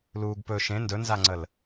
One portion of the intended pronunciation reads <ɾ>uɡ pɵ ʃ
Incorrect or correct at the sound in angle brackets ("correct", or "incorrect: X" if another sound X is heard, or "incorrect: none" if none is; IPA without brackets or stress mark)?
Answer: incorrect: l